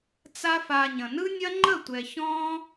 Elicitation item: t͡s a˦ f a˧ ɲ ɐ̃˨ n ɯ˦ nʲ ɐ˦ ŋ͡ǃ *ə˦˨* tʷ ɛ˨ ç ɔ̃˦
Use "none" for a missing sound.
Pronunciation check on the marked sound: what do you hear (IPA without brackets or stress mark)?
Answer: ə˦˨